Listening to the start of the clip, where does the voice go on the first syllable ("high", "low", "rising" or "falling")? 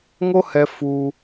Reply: high